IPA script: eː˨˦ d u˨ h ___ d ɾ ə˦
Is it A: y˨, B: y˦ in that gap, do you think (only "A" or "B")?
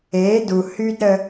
B